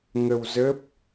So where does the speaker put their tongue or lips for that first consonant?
velum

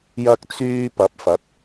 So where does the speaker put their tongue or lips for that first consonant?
palate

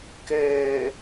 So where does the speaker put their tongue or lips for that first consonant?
velum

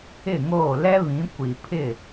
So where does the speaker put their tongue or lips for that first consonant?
velum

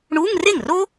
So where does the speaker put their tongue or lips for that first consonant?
retroflex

